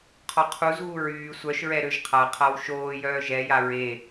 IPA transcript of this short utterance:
qʰ ɔ qʰ u z ɣ u ɹ yː sʷ œ ʃ ɹ ɛ ɾ ø ʒ qʰ a qʰ a w ʃ oː j œː ʒ ɛ j a ɹ e

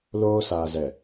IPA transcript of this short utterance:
l oː˦ s aː˨ z ɛ˨

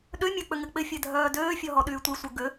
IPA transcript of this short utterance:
ɗ ø mʲ œ k͡p ʏ ŋ ɪ k͡p ɪ fʲ ɛ dʱ œː d øː fʲ ɔ ɦ ɔ ɗ yː tʷ i sʷ œ ɡ ʏ

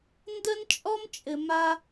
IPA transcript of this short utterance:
n d ə˦ n t͡ʃʼ ɔ˦ m t͡ʃʼ ɘ˨ m a˦

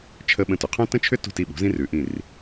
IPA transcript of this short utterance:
t͡ʃʰ ə˧ ɓ ə̃˧˩ t ʏ˩˧ qʰ õ˥ t ə̃˥ t͡ʃʰ ʏ˥ t ṳ˧˩ t i˧˩ ɓ ṳ˩˧ z ĩ˧ r ʉ˩˧ ʔ ĩ˧˩ r

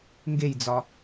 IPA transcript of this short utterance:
ŋ ɡ e j d͡z ɒ

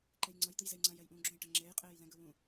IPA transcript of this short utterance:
ǃ e j ŋ͡ǀ ʌ j d̪ ɯ j z e j ŋ͡ǀ ã j ɛ j ʔ ũː ɡ͡ǁ õ j ʈ ʌ ŋ͡ǁ eː j qʼ eː j l ɛ̃ ɡ ɯ w ũ

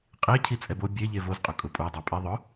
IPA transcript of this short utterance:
qʼ e cʰ i t͡sʼ ɛ b o bʲ e ʎ e v o z qʼ ʊ kʼ ʊ pʼ u dˤ ɛ pʼ i ðˤ ʊ

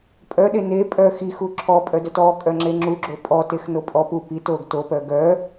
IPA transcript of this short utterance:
pʼ œ ɗ e n e pʼ œ x i x u ǁʰ ɔ pʼ œ d œ t ɔ kʼ œ ŋ͡ǁ e ŋ͡ǁ u ɡ͡ǁ o pʼ ɔ t e x n o pʼ ɔ p u p i t o ɡ t o p œ ɡ œ

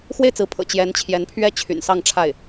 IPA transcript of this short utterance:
x w e˥˩ ɪ̯ t͡s ɹ̩˧˥ pʰ ɤ̰˨˩ t͡ɕ j ɛ˧˥ n t͡ɕʰ j ɛ˧˥ n pʰ ɥ ɛ˥˩ t͡ɕʰ y̰˨˩ n s ɑ˥˧ ŋ ʈ͡ʂʰ a˥˩ ɪ̯

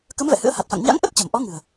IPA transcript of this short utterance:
k ə˨˦ m v ɛ̰˧˨ h ɨ̰˧˥ ə̯ h a˨˩ t̚ f a̰˧˨ ŋ ɲ a̰˧˥ ŋ ʔ ə˦˥ t̚ t͡ɕ ə˧˩ m ʔ ɔ˨˦ ŋ ɨ̤˨˩ ə̯

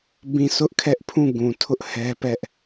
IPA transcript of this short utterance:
b ĩ˦˨ s ʊ˦ ʔ kʰ ɛ˦ ʔ pʰ ũ˦˨ ɡ ũ˨ tʰ ʊ˦ ʔ h ɛ˦ p ɛ˦ ʔ

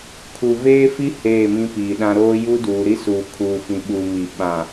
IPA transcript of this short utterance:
kʰ u˨ v eː˦ f i˦ h eː˦˨ m ĩ˦ p iː˨ ɗ ã˦ ɾ oː˦ j u˦ d uː˨ ɾ i˦ s uː˨ kʰ uː˨ f ĩ˨ ɓ u˨ m i˨ ɓ ã˨

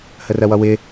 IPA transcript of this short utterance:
h ə r ɜ w ʌ w ɪ

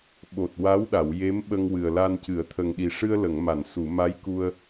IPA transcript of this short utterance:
ɓ o˨˩ t̚ w a˧˥ w ɗ a˨˩˨ w j e˧˥ m ɓ ə˧ ŋ w ɨ˨˩ ə̯ l a˧ n c ɨ˨˩˦ ə̯ t̪ʰ ə˨˩ ŋ ɗ i˨˩ ʂ ɨ˧ ə̯ l ə˨˩˨ ŋ m a˨˩˨ n s u˨˩˨ m a˧˥ j k u˧ ə̯

